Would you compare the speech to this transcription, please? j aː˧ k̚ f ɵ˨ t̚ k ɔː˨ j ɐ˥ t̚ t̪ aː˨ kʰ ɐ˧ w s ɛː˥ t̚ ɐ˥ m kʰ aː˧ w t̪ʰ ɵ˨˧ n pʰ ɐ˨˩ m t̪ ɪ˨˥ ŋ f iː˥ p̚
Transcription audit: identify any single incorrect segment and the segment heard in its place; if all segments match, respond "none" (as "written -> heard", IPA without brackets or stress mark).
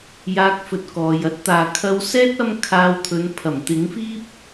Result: none